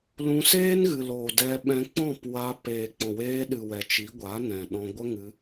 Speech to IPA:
l ũ˧ s eː˦ n ɣ ɨ˨ l oː˨ d ɛ˧ ɓ ɛ̃˧ k͡p ɔ̃˦˨ p w a˧ p eː˨ k͡p ɔ̃˨ w eː˧ ɗ ɨ˨ w ɛ˨ t͡ʃ i˨˦ ɡʷ a˨˦ n ɛ̃˨ ɗ ɔ̃˧ ɡʷ ə˦ ŋ ɨ˧

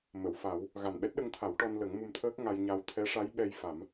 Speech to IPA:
m ə˨˩˨ w f a˨˩˦ w | ɣ a˨˩ n ɓ ɛ˦˥ t̚ ɗ ə˧ ŋ t̪ʰ a˨˩˦ w ʈ ɔ˧ n l ə˨˩˦ ŋ m u˧ m t̪ʰ əː˦˥ k̚ ŋ a˧ j ɲ a˧ w t̪ʰ ɛ˧˥ ʂ a˧˥ j ɓ ɛ˧ j f a˨˩˦ m

